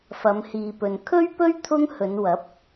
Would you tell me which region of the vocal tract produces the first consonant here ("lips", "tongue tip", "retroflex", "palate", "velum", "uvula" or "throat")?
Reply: lips